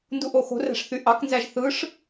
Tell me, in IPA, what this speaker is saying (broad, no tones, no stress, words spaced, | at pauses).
nduʔoxo̤ræ̤ʂ θyʔɑknzæʒ θɯʂ